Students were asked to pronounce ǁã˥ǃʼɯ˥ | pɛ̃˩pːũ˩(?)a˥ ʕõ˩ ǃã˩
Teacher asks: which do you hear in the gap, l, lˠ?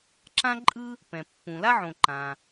l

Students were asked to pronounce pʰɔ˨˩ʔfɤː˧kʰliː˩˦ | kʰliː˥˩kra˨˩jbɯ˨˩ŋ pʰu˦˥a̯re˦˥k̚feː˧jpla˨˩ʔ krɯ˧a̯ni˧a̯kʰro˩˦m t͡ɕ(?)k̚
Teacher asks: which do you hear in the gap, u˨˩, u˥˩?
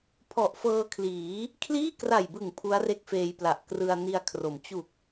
u˨˩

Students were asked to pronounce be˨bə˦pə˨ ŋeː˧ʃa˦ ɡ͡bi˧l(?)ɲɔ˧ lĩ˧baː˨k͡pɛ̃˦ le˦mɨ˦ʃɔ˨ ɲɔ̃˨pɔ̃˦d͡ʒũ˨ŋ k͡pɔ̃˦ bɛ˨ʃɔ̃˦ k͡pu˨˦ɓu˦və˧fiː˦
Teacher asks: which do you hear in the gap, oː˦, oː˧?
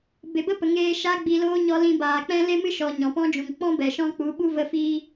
oː˦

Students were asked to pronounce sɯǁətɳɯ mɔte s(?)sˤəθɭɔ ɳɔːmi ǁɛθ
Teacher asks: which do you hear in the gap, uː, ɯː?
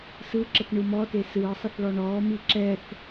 ɯː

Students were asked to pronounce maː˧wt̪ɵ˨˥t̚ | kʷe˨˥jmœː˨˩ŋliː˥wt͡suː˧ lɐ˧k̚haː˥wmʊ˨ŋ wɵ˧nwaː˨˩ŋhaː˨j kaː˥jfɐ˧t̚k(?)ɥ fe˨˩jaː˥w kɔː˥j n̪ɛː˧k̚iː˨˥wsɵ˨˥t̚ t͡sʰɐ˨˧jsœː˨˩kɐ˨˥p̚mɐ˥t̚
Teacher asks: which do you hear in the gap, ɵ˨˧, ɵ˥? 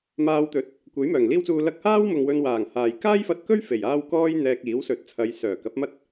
ɵ˥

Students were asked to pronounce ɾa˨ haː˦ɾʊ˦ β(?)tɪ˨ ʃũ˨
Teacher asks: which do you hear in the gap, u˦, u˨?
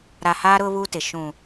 u˦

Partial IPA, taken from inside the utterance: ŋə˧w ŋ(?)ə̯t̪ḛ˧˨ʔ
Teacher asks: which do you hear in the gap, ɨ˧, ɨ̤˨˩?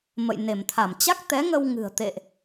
ɨ̤˨˩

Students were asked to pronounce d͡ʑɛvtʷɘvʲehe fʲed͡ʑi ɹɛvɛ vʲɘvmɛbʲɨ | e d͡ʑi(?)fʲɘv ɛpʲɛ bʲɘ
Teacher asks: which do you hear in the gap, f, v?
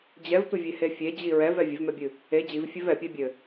v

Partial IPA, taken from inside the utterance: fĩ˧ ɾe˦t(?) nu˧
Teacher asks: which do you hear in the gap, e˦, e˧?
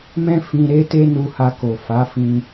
e˦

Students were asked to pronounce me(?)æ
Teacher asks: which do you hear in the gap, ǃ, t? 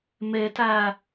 t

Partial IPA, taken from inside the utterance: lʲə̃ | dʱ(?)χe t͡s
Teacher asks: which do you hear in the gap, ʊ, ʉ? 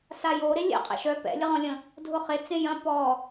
ʊ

